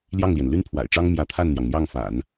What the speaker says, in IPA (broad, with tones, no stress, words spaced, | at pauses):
ljɑ˥˩ŋljɛ˩n ly˥n pʰwa̰˨˩ɪ̯ʈ͡ʂɑ˥ŋ mjä˧˥ t̪ʰa˥˩nn̪jɑ˩ŋn̪jɑ˥˩ŋfa̰˨˩˦n